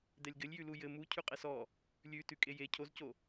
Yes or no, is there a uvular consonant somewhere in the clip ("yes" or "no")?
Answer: yes